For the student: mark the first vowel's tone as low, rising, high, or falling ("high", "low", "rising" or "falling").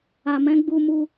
low